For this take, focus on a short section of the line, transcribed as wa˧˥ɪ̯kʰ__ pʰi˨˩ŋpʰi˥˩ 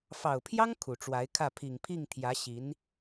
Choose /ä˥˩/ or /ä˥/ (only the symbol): ä˥˩